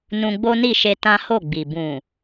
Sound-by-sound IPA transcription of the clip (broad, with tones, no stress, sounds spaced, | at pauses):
n ũ˧ ɡ͡b o˦ n i˦˨ ʃ e˧ t ã˦ h o˦˨ ɡ͡b i˨ b ũ˨